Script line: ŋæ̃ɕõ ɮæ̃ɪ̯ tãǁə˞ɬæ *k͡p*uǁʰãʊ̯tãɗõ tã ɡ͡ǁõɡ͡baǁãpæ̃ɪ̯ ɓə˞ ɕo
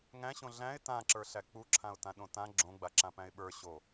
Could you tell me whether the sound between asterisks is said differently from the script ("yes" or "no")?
no